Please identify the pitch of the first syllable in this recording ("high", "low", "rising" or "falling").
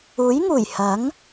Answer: rising